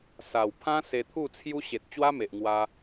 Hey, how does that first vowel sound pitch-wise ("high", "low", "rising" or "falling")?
low